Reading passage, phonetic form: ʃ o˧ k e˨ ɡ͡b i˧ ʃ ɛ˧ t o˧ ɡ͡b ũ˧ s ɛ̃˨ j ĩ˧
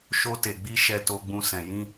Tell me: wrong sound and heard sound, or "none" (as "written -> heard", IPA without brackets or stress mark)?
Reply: k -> t